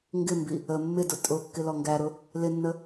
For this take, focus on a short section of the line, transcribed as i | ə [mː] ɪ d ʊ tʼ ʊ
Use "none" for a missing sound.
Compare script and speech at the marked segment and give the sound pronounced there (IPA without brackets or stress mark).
mː